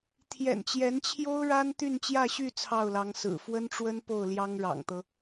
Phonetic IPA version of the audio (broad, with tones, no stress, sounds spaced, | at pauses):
t̪ʰ j ɛ̰˨˩ n t͡ɕ j ɛ˧˥ n t͡ɕʰ j o˥ ʊ̯ ɻ a˥ n t̪ y˥˧ n t͡ɕ j ä˥˧ ɕ y˥˧ t͡sʰ ɑ˥˩ ʊ̯ l ɑ˧˥ ŋ s ɹ̩˨˩ f w ə˥ n ʈ͡ʂ w ə˥ n p o˥˩ ʊ̯ l j ɑ˥ ŋ ɻ ɑ̰˨˩ ŋ t̪ ɤ˦